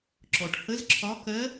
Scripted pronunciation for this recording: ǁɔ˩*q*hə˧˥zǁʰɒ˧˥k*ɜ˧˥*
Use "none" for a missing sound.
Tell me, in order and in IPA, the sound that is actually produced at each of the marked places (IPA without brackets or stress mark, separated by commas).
ʈ, ɜ˧˥